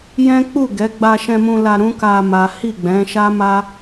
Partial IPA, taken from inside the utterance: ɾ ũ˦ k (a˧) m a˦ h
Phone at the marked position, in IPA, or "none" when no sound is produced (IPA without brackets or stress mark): a˧